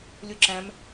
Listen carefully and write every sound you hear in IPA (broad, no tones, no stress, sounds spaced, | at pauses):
lʲ u ǁ æ̃ m